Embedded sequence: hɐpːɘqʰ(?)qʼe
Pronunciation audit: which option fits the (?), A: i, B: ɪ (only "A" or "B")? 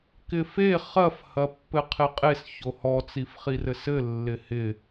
B